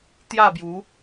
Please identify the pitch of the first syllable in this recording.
falling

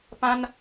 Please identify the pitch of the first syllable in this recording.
high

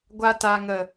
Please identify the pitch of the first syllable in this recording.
low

